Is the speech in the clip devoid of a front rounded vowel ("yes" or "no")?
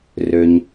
no